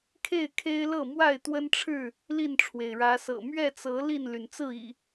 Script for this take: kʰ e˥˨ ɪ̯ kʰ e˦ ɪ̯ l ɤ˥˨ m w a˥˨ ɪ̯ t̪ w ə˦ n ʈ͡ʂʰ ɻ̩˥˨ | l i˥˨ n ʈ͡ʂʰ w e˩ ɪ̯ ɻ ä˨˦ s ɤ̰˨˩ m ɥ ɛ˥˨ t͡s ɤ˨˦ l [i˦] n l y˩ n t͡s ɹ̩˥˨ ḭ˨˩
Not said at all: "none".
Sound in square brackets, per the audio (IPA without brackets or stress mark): i˥˨